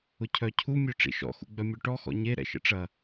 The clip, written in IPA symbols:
ʊ cʰ œ cʰ u mʲ œ ʈ͡ʂ ḭ ʃ ɔ̰ x ṵ ɡ͡b œ mʲ ø ʈ ɔ x ɔ̰ ɲ e ɾ ɛ̰ ʃ ə̰ ʈ͡ʂ ɐ

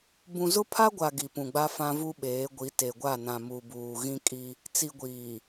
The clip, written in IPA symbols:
b ũ˨ z ʊ˦ pʰ a˦ ɡʷ a˨ ɡ i˨ p ũ˨ ɡ͡b a˦ f ã˦ v u˦ ɓ eː˨˦ ɡʷ i˨˦ t e˨ ɡʷ a˦˨ n ã˨ m u˨ b uː˨ ɣ ĩ˦ kʼ i˦ | t͡s i˨ ɡʷ iː˨

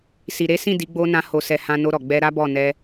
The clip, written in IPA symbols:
s i˨ ɾ e˨˦ s ĩ˦˨ d i˨˦ ɡ͡b o˧ n ã˦ h o˧ s ɛ˧ h ã˧ n o˧ ɾ ɔ˨ ɡ͡b ɛ˧ ɾ a˦ b ɔ˦˨ n ɛ˧

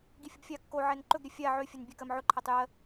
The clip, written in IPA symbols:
ɡ i fʲ ə b fʲ a kː o ʕ ɛ n ǃ ɵ ɡ ɾʲ ɵ fʲ a ʕ ø fʲ ɵ n bʲ ɛ k ɜ m ʕ ɵ ǃʰ ɛ tˤ j ɜ

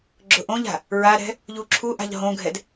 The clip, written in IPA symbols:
ɡ͡ǁ ʊ ʔ õ ʎ a̤ | ɹ a ɾ ɛ̤ | ʎ u ǁʰ u ʔ a̤ ʎ ɦ õ ɡʱ ɛ d

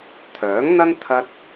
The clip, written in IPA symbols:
t̪ʰ œː˨˥ ŋ n̪ ɐ˥ n t̪ʰ ɐ˥ t̚

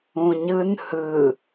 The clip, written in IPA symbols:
ũ ɲ ɯ n h ɯ

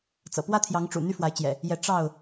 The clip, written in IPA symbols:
t͡s ɤ̰˨˩ p w ä˦ t̪ʰ j ɑ˨˦ ŋ ʈ͡ʂ ṵ˨˩ n̪ y˦ f w a˨˦ ɪ̯ t͡ɕ j ɛ̰˨˩ | j ɛ˨˦ ʈ͡ʂ ɑ˥˨ ʊ̯

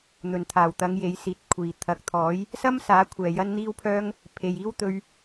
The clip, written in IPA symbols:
n̪ ɵ˨˩ n t̪ʰ aː˨˩ w t̪ ɐ˨˧ ŋ j e˨˧ j s iː˨˥ t̚ kʷʰ iː˨ t̪ʰ ɐ˨˥ k̚ t̪ʰ ɔː˨˥ j | s ɐ˥ m s aː˨˥ kʷʰ ɛː˨ j ɐ˥ n n̪ iː˥ w pʰ œː˥ ŋ | pʰ e˨ j iː˥ w t̪ ɵ˧ ɥ

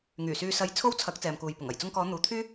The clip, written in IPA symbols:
ŋ yː˨˩ s yː˧ s ɐ˧ j t͡sʰ o˥ w t͡sʰ ɐ˨˥ k̚ t͡s ɛː˨ m k uː˨ j p ʊ˨˩ ŋ ɐ˨˩ j t͡s ʊ˧ ŋ k ɔː˨˧ n̪ uː˨˧ t̪ʰ yː˥

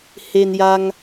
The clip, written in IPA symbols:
h e˧ n j a˧ ŋ

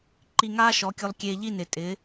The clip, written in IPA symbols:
ǃ i˧ ŋ aː˦ ʃ ɔ˨˦ kʲ o˧ lˠ kʲ eː˧ ʎ i˦˨ n ɪ˨ tʼ ɪ˨˦

